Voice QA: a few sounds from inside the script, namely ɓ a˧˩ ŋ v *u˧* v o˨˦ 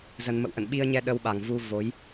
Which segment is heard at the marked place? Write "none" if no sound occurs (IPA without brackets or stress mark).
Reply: u˧